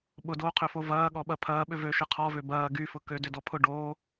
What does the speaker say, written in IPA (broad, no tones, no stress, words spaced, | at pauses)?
ɓʊdoːqʰøfo vɐːɠɔɓɐ pʰɐːɓʏ vøʃɪ qʰɔvø bɐː ɡyfʊ kødʏdɔpʰʊ ɖoː